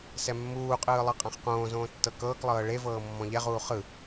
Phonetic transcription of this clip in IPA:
s ɛ mː uː qʼ ɯː lˠ ɤ qʼ ã χ q õː z õː tː ɤ k ɤː k lˠ ɤː ɭ e v ɤː mː ɔ̃ ʎ ɛ ʁ uː χ ɯ

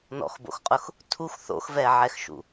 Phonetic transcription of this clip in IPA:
n ɔ̰ x b o̰ x qʼ ʊ x | tʰ u x θ o̰ x v ɛ ʕ ɛ x ʃ ṵ

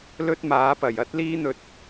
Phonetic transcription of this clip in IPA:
l ɵ˥ t̚ m aː˨˥ p ɐ˨˩ j ɐ˥ t̚ l iː˥ n̪ ɵ˧ t̚

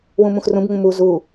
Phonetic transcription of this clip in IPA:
w ũ m ũ x r ũ b ŋ ũ m u z u

